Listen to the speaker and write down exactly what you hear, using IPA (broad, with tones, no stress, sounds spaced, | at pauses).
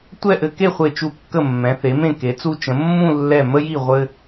tʷ ɛ˥˧ ʔ ɘ˧ k e˥˧ χʷ e˧˩ t͡ʃ u˧˩ kː ə˧˩ mː ɛ̃˩˧ θ e˩˧ m ẽ˧˩ k e˩˧ t͡s u˧ t͡ʃ ə̃˩˧ mː ũ˥˧ lː ɛ˧˩ m ə˧ j i˧˩ ʁʷ ɘ˧